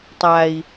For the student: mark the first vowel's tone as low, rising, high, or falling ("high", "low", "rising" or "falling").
low